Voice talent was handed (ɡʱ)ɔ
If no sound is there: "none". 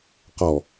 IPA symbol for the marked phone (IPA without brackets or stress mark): q